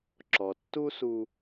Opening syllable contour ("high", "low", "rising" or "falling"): low